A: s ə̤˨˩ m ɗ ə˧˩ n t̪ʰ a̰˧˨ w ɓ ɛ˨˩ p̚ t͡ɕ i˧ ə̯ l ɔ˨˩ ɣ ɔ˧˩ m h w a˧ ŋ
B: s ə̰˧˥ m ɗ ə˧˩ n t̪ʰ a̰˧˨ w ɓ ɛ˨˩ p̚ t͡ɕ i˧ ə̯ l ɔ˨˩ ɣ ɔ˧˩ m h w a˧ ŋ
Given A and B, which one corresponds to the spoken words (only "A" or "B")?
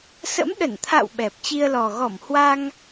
B